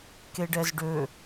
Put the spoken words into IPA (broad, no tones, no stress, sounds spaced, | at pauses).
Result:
k e ɖ ɛ z ɖ ø